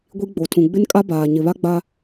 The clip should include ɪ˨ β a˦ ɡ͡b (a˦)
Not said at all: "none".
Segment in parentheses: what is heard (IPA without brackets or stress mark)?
a˦